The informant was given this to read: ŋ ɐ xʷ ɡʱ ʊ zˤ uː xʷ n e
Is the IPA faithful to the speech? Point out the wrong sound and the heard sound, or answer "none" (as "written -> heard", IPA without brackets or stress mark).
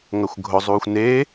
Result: none